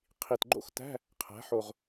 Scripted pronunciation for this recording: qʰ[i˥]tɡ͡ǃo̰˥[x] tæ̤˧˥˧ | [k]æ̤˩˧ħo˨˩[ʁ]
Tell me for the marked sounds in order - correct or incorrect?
incorrect: i˨˩, correct, incorrect: qʰ, correct

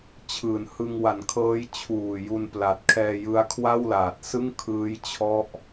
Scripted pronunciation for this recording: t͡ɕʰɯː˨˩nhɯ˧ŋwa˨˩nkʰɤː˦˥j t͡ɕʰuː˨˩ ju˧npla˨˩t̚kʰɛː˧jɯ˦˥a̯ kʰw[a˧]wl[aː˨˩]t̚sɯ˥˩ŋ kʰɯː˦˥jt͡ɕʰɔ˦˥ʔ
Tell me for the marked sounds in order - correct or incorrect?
incorrect: a˥˩, correct

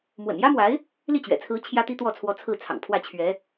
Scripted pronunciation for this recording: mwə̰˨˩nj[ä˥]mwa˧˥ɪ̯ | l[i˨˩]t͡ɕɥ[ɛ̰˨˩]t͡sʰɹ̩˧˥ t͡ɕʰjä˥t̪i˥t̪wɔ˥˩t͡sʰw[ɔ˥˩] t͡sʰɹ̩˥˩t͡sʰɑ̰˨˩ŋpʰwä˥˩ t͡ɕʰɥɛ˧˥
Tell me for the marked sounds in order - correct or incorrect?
correct, incorrect: i˥˩, correct, incorrect: ɔ˧˥

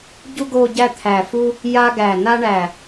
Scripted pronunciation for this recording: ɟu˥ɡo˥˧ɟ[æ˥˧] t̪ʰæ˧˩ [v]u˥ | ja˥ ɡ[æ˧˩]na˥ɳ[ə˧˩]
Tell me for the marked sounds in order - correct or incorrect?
correct, incorrect: f, correct, incorrect: æ˧˩

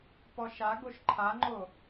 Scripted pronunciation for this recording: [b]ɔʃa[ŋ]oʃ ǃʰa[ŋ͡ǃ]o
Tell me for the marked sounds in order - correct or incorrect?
incorrect: p, incorrect: ɡ, correct

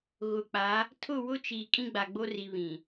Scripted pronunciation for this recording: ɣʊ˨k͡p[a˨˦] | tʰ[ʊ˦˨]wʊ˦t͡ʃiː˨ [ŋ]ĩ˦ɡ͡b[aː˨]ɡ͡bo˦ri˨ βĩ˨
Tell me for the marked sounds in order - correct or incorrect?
correct, correct, incorrect: kʼ, incorrect: a˨

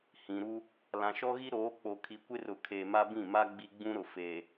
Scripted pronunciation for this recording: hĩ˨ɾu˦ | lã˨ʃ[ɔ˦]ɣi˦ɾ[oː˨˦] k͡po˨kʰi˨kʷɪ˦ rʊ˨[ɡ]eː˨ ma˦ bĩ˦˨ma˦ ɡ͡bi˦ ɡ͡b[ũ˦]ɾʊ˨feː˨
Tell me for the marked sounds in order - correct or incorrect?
correct, correct, incorrect: kʰ, correct

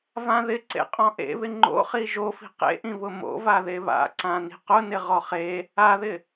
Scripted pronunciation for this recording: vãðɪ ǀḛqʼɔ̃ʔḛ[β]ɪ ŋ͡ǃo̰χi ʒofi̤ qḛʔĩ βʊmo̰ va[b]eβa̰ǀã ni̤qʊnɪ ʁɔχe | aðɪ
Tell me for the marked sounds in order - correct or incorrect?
correct, incorrect: ð

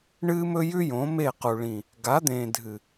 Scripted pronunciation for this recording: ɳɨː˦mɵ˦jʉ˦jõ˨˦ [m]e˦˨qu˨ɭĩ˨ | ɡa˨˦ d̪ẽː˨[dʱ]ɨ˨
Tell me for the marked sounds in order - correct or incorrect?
correct, correct

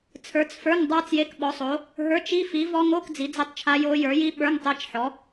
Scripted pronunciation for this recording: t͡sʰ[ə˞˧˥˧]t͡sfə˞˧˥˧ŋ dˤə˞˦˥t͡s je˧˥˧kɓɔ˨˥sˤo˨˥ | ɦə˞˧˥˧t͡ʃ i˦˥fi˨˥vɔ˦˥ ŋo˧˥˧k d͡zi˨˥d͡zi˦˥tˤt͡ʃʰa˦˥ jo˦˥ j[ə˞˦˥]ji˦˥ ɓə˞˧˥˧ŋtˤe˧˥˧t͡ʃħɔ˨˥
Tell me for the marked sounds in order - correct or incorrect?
incorrect: ə˞˨˥, incorrect: ə˞˨˥

